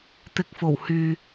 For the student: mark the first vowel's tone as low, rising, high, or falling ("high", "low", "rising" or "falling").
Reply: low